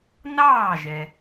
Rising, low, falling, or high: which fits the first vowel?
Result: falling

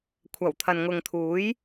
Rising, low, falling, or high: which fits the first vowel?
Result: low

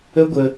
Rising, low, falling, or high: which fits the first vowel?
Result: high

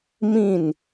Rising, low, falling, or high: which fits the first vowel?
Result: falling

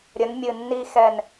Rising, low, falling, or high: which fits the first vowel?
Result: rising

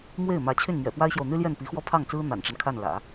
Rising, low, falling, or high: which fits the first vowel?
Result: falling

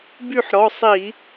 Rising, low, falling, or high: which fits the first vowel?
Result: falling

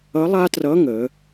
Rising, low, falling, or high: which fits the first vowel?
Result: rising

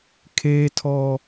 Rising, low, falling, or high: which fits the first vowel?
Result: high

